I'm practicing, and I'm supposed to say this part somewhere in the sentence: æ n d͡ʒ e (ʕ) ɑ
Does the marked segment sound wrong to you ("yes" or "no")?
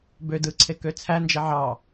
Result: no